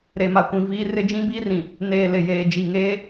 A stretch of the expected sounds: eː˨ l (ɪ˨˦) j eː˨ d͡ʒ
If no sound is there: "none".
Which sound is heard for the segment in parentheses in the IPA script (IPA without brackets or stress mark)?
ɪ˨